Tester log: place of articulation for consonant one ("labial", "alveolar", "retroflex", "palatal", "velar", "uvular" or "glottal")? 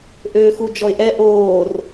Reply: glottal